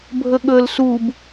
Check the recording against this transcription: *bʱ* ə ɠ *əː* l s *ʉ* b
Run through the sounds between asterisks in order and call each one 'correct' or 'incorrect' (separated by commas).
correct, correct, incorrect